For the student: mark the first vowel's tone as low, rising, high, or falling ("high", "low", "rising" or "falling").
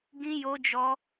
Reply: high